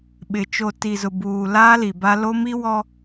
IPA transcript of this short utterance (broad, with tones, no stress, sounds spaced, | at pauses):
ɓ ɪ˨ t͡ʃ o˨ t i˨ z ʊ˨ b uː˨ l aː˦ l i˨ b a˦ l o˦ m i˦ w ɔ˦